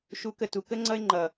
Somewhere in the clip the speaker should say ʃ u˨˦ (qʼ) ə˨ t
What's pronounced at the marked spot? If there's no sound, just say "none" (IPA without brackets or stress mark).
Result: k